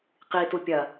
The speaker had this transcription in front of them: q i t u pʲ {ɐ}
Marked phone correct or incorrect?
correct